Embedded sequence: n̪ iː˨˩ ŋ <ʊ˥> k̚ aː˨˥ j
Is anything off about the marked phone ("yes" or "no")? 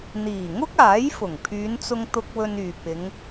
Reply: no